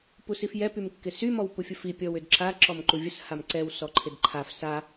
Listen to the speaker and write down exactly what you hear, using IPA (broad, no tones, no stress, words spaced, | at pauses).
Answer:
pusifjɛ pymkːɪsy mɔwpufʲəfi pʲɔwʏdǁa ǁɔmǃuvʲəs hamǀɛw sɔǃʰɪdǃʰaf sa